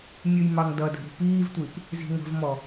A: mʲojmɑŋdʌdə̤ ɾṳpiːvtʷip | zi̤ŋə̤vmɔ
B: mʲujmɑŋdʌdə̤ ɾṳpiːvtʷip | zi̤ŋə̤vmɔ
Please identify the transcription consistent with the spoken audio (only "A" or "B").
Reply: B